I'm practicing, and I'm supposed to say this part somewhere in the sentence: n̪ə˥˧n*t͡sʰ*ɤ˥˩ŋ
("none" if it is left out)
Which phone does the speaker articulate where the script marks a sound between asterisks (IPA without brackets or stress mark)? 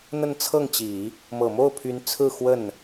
t͡sʰ